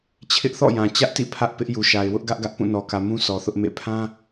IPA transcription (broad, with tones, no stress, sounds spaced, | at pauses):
t͡ɕʰ ɪ˦ ʔ θ ɔ̰˦˨ j ã˨ t͡ɕ ä˦ ʔ t ḭ˦˨ pʰ ä˦ ʔ p ɪ˦ ʔ j u˨ ʃ a˨ ɪ̯ w ʊ˦ ʔ ɡ ä˦ ʔ ɡ ä˦ ʔ p ũ˦˨ n ɔ˨ k ä˨ m ũ˦ sʰ ɔ˨ θ ʊ˦ ʔ m ḛ˦˨ pʰ ã˦